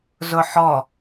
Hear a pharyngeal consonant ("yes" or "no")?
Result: yes